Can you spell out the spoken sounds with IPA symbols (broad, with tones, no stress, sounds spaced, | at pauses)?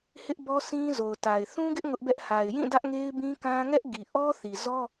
h ɪ˦ ʔ b ɔ˦ s ĩ˦ z o˨ ʊ̯ t a˨ ɪ̯ θ ũ˦ ɡ ɪ˦ ʔ ŋ ʊ˦ ʔ b ɛ˦ ʔ h a˨ ɪ̯ j ĩ˦˨ d ä˦ ʔ ŋ e˦ ɪ̯ b ĩ˦ k ã˦ ŋ ɛ˦ ʔ ɡ i˨ ʔ ɔ˦ θ i˨ z ɔ˦